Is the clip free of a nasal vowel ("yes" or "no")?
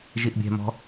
yes